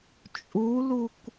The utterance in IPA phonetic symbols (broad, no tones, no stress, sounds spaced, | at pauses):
t͡ʃʼ u l u k